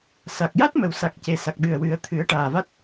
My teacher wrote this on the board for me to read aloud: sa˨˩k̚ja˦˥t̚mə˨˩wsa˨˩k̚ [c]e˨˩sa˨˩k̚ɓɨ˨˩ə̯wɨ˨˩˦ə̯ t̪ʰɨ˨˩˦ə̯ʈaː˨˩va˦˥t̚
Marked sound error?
no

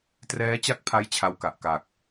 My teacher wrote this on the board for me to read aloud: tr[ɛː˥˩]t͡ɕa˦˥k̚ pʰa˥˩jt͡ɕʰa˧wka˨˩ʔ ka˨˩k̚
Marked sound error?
yes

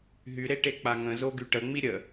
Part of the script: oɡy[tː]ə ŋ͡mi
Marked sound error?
yes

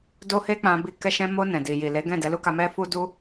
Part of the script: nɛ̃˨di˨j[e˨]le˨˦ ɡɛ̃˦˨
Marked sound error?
yes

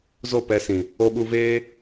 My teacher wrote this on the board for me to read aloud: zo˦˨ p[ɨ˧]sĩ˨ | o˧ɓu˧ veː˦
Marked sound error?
yes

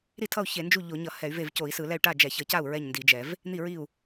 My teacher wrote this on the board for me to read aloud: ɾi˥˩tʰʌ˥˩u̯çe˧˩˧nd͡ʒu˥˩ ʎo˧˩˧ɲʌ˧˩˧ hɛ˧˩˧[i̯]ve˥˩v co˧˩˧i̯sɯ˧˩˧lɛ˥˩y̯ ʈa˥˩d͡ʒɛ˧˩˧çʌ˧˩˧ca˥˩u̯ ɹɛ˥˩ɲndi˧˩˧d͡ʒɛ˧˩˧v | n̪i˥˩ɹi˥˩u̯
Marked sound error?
yes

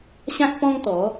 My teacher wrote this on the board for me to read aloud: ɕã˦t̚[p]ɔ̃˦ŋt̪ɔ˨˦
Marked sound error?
no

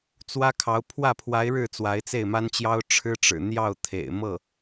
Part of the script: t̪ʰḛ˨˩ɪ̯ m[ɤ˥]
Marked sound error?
yes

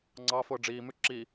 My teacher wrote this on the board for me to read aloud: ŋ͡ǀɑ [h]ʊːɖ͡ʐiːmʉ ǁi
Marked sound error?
yes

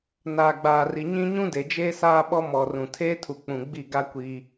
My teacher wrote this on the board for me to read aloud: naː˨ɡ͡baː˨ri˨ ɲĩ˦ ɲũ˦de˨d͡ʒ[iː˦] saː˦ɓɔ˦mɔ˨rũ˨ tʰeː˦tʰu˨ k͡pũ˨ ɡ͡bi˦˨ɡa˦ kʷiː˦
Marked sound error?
yes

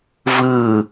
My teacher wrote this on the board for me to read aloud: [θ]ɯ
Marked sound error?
yes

